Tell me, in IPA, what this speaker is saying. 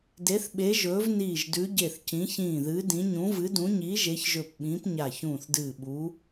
d e˨˦ θ ɓ e˨˦ ʒ ɵː˨˦ v n iː˧˩ ʒ d ʉ˨˦ ɟ e˧˩ θ c ĩ˨˦ ç ĩː˧˩ ð ɨː˨˦ d ĩ˨˦ ɲ ũ˨˦ v ɨ˨˦ d ũ˨˦ ɲ iː˨˦ ʒ e˨˦ ç ʒ ɵ˧˩ p ɓ ĩː˨˦ p ɲ a˧˩ ç ũː˧˩ θ d ɨː˧˩ ɓ u˨˦

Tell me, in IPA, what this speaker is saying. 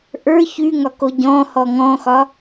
ʔ ə˞ ç y ŋ ɒ k o ɟ ɔ̃ h ɔ ŋ ɔ̃ x ɒ

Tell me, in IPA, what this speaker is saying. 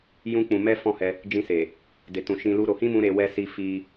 j ũ˦ k͡p ũ˧ m ɛ˦ f ɔ̃˦˨ h ɛ˧ | d͡ʒ ĩ˧ s e˨ | d e˨ t ũ˨ ʃ ĩ˧ l u˦ ɾ o˧ h ĩ˦ m ũ˧ ɾ e˧ w ɛ˧ s i˧ f i˧

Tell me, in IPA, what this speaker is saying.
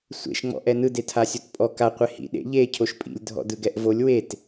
sʷ ḛ ʃ ŋ͡m ɔ̰ ʔ ɛ n ɯ d e tʰ a sʲ o t pʼ ɔ k a qʷ e h ḭ ɗ ḛ ʎ e cʰ o ʃ pʼ ḭ lʲ dʱ ɔ̰ d ɯ ɡ ɛ ʔ v o lʲ w e t

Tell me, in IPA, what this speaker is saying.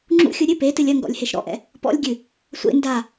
ŋ͡ǁ ṵ xʲ u ɾʲ ɨ p e t ɨ lʲ ɐ ŋ ɡ ɔ̰ lʲ h e ʃ ɾ ɔ̰ ʔ ɛ̰ | p ɔ̰ lʲ ɡʲ ɨ | sʷ ḛ n d a

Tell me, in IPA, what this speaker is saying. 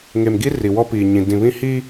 ŋ e˨ m ɡ i˦ r i˨ w ɔ˦ p iː˨ ɲ ĩ˨ d ĩ˨ β ĩ˦ h i˦

